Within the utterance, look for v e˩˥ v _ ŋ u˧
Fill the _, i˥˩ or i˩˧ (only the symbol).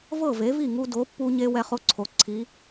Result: i˥˩